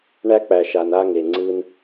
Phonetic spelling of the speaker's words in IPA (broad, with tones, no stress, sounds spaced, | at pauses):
ɳ æ˦ k͡p æ˨ ʃ a˨ n a˧ ŋ e˨ ŋ͡ǀ ɯ˧ n